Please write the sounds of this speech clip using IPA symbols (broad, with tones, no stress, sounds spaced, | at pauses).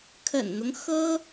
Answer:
kʰ ə̰˨˩ n n̪ ʊ˦ ŋ x ɤ˥